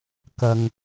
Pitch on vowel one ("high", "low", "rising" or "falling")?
low